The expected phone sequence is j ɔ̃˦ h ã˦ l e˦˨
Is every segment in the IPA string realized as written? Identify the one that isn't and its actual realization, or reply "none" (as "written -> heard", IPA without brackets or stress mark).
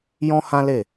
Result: none